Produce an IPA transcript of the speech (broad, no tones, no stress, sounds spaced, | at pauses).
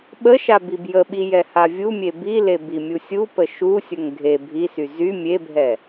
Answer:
ɓ ə ʃ a b i b j ə ɓ i j ɛ h a vʲ u mʲ e b i l e b i mʲ u sʲ u p ə ʃ u sʲ ə ŋ ɡʱ e bʱ i s y z y mʲ e bʱ ɛ